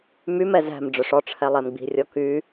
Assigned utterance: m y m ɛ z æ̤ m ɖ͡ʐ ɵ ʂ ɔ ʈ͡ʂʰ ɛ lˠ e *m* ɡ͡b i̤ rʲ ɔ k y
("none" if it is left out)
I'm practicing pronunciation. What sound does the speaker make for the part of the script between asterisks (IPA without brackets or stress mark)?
m